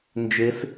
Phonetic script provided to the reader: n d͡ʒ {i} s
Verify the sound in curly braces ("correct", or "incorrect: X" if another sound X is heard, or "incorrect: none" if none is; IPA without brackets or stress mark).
incorrect: e